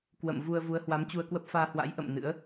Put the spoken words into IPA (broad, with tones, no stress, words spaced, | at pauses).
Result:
kwə̰˧˨m vu˧ə̯ vu˨˦ə̯hwa˨˦mt͡ɕu˧ə̯kwə˦˥p̚ faː˧hwa̰˧˥j ʔə̰˧˨m nɨ̰˧˥ə̯